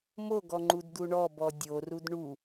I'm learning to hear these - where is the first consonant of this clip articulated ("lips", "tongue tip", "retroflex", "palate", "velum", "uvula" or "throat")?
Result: lips